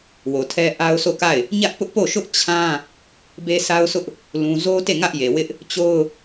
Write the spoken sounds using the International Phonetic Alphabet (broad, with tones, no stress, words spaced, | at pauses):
wo˨tʰɛ˦ ʔa˦ʊ̯so˦˨ka˦˨ɪ̯ | ɲä˦ʔpʊ˦ʔpo˦˨ ʃʊ˦ʔ t͡ɕʰã˦ | be˦sʰa˦ʊ̯sʊ˦ʔ | lũ˦ zo˦te˦˨ ŋä˦ʔje˨wɪ˦ʔ | t͡ɕo˦ʊ̯